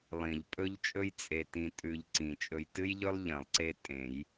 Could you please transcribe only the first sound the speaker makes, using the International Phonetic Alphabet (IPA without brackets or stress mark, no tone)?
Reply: lˠ